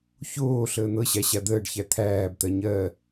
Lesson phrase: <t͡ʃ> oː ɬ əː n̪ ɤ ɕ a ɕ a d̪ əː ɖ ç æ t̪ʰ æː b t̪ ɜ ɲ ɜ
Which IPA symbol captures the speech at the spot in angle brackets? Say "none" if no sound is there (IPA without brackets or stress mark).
ç